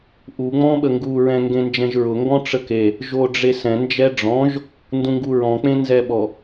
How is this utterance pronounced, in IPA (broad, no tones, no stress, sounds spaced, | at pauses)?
ʔ u ŋ͡m ɔ̃ ɓ ə ŋ ɡ u ɹ ɛ̃ ŋ ɡ ẽ n d͡ʒ ɛ̃ ʒ ɹ ʊ ŋ ɡ ɔ̃ ʈ͡ʂ ə k e | ʒ o ɖ͡ʐ e s ɛ̃ n d͡ʒ ɛ ɖ͡ʐ ɔ̃ ʒ | n d ũ ŋ ɡ u ɹ ɔ̃ k͡p ẽ n z ɛ ɓ ɔ